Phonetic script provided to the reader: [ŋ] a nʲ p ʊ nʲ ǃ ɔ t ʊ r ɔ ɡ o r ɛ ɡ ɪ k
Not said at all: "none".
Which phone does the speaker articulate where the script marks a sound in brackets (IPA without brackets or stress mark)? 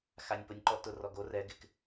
x